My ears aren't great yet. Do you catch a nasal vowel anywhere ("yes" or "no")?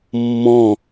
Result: yes